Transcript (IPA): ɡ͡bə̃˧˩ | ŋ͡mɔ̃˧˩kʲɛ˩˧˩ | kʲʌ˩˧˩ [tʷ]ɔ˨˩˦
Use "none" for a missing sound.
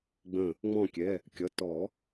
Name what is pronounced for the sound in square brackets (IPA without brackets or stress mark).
t